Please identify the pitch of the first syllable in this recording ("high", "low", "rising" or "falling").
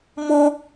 high